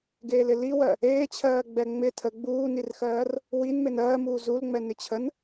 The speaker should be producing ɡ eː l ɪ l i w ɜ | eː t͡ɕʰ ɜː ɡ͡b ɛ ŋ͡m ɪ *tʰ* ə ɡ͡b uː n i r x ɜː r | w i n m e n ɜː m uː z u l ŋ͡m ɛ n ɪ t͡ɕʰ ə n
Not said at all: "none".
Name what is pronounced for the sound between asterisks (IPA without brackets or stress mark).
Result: tʰ